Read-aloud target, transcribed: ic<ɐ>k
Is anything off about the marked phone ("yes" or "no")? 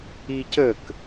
yes